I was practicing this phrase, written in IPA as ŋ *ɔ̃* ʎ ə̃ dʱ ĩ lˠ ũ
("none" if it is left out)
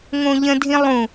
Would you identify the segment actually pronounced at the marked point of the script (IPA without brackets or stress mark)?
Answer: õ